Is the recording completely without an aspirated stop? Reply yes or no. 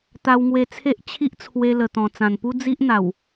no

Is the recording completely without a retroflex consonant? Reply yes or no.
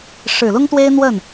no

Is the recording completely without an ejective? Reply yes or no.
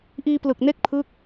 yes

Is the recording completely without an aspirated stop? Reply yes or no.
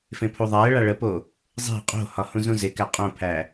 no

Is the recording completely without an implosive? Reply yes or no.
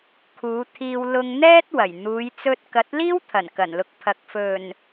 yes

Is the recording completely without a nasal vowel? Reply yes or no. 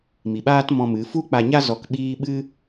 no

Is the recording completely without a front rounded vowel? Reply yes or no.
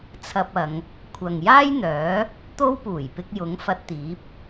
no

